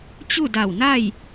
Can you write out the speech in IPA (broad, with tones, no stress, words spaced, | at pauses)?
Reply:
t͡ɕu˥˨da˧˩wna˥˨j